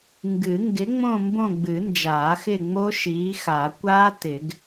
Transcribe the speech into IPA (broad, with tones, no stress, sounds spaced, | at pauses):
ŋ ɡ ɨ˨˩˦ ŋ ɡ ɪ˨˥ ŋ͡m õ˦˨ m b õ˦˨ ɡ͡b ɨ˨˩˦ n d͡ʒ aː˨˩˦ x ɪ˦˨ ŋ͡m o˦˥ ʃ iː˨˥ x a˨˩˦ kʷ aː˦˥ t ɪ˨˩˦ ɡ